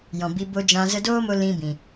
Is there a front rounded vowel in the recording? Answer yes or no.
no